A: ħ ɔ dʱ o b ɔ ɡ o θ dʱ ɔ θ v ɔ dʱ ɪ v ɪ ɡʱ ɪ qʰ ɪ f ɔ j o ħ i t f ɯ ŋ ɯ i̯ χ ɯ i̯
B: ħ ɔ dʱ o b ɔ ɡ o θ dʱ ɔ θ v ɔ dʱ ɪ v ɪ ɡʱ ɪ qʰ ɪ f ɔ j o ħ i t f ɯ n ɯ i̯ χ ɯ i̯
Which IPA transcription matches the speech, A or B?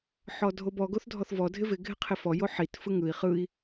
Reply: A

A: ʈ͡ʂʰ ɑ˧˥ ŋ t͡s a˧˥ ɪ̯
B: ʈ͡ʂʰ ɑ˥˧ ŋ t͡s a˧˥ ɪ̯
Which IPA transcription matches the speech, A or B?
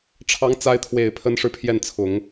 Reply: A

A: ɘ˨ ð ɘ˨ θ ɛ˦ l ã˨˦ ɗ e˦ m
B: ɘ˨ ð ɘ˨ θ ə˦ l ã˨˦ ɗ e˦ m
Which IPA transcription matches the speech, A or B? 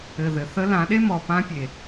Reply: B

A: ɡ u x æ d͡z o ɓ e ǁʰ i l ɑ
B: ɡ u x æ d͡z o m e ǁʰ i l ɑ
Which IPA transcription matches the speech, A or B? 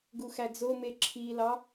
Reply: B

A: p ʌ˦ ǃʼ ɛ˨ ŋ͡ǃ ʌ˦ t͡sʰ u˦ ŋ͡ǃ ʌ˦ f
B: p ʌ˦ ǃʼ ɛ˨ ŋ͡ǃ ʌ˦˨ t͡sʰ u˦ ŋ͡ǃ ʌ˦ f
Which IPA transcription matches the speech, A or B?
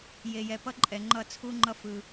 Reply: B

